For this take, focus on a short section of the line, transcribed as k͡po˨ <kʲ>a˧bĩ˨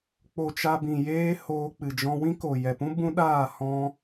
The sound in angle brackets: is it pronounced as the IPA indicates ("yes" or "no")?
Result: no